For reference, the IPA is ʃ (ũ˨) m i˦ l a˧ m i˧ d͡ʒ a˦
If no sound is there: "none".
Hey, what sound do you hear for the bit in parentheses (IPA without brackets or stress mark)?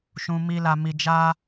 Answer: ũ˧